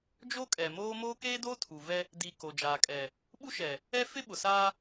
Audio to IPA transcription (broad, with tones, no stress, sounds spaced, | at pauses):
d͡ʒ o˦ kʼ ɛ˨ m oː˦ m oː˦ k eː˦ d oː˦ tʰ u˨ v ɛ˦ | d i˨ k o˨ d͡ʒ aː˨ kʼ ɛ˨ | ɓ u˦ ʃ ɛ˨ | ɛ˦ f ɪ˦ ɓ ʊ˨ s aː˦